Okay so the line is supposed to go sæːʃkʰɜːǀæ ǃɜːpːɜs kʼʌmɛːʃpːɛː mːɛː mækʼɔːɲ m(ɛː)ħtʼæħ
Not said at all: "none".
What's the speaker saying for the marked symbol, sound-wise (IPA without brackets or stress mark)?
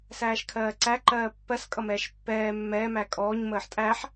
əː